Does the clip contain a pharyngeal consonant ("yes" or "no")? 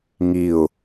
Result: no